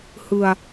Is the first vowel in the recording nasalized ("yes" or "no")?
no